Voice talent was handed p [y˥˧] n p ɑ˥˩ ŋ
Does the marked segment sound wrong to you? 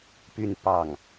no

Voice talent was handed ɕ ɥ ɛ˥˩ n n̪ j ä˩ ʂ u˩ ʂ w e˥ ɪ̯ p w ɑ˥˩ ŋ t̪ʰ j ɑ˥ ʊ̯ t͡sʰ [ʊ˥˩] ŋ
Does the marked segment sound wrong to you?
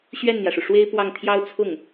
no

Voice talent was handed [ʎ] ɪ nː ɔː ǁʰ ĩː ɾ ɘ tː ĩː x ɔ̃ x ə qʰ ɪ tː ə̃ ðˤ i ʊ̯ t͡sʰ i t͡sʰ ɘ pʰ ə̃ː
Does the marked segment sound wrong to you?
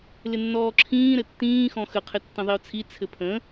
yes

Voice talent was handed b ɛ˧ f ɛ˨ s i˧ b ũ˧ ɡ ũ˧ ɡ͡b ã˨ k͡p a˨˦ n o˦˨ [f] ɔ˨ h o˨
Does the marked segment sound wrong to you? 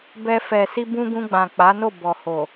yes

